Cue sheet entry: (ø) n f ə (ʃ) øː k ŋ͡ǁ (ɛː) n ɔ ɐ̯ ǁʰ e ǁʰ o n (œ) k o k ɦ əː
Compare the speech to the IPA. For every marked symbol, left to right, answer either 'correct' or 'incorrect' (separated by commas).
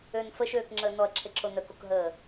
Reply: correct, correct, incorrect, correct